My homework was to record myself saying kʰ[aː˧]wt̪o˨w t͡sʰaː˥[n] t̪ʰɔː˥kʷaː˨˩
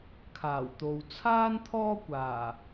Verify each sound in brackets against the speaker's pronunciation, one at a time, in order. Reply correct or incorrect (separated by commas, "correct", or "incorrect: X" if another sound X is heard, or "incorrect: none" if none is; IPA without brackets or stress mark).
incorrect: aː˨˩, correct